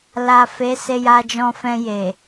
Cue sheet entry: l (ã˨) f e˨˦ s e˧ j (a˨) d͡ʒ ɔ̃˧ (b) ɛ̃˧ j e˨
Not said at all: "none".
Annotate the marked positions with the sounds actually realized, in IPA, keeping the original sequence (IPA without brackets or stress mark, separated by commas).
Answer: a˨, a˧, f